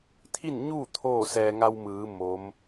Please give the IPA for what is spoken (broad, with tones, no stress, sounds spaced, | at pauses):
t̪ʰ i˥˨ n ɲ u˥˨ t̪ʰ oː˥˨ s ɛː˧ ŋ a˧ w m ɯː˩˧ m o˧˥ m